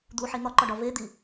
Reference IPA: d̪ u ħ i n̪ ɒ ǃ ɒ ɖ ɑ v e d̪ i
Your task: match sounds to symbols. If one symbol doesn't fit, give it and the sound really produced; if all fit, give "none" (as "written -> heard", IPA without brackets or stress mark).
ɑ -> ɒ